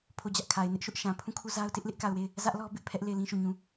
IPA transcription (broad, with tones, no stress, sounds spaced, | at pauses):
pʰ o˦˨ d͡ʑ ä˦ ʔ kʰ a˨ ɪ̯ n ɪ˦ ʔ ʃ ʊ˦ ʔ ʃ ã˨ pʰ ũ˦˨ kʰ u˦˨ z a˦ ʊ̯ t ɪ˦ ʔ l ɪ˦ ʔ k a˦˨ ʊ̯ w e˦˨ ɪ̯ | z ä˦ ʔ l ɔ˦ b ɪ˦ ʔ pʰ ɛ˦ ʔ l e˦˨ ɪ̯ l ĩ˦ ʃ o˦˨ ɲ ũ˦